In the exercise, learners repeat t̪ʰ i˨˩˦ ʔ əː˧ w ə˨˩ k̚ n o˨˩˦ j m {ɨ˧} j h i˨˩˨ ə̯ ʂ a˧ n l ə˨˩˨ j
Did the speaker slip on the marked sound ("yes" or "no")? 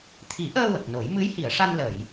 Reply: yes